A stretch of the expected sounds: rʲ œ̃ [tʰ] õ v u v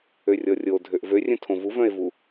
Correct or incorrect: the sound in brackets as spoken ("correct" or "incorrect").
correct